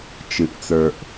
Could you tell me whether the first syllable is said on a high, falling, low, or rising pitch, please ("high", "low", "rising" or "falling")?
low